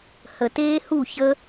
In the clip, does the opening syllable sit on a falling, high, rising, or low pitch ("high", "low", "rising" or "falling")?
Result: low